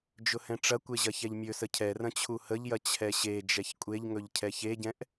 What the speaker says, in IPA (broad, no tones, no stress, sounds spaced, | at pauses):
d͡ʒ ʊ h ɛ̃ ʈ͡ʂ ɐ kʷ e ʑ ɐ ç ɛ ʎ mʲ ɵ s ə cʰ ɛ r ɐ̃ t͡ɕʰ u h ə ʎ j ɐ t͡ɕʰ ɛ ɕ e d͡ʒ ɛ ç kʷʼ e ʎ ŋ ɵ ʎ cʰ ɛ ç e ɟ ɛ̃ ʔ